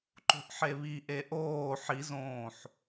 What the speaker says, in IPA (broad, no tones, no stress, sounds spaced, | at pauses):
ǃ o̤ ʔ ħ e β i ʔ e ʔ oː ħ i z õː ħ